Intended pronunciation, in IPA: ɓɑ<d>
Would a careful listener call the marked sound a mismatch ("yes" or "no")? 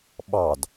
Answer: no